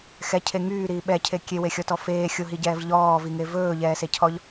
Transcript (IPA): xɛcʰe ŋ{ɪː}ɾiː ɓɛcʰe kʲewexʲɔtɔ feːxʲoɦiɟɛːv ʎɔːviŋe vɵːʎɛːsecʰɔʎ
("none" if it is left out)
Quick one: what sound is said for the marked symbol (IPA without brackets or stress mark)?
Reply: yː